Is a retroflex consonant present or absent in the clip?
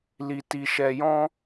absent